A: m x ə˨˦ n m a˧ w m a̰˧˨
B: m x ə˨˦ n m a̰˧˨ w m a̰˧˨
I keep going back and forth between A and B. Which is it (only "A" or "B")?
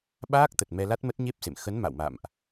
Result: B